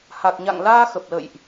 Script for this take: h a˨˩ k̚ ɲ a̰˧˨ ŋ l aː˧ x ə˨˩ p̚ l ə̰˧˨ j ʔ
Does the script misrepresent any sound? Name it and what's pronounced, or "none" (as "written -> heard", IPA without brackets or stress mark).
none